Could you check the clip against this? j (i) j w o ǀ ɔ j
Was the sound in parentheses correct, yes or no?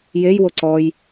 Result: no